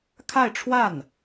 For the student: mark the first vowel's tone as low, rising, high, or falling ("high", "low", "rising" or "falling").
falling